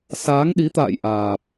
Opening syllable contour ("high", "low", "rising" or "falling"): rising